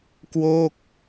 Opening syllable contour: falling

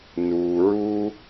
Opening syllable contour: low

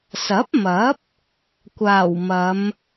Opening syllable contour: rising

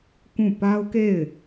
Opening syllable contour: falling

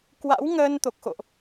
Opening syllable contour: rising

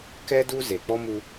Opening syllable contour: high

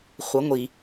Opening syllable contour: rising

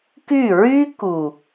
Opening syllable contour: falling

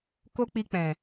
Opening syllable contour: high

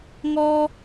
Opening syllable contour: high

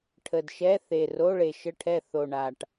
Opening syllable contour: low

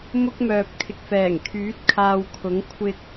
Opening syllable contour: high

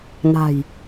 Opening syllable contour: low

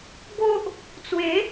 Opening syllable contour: high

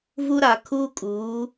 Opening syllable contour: high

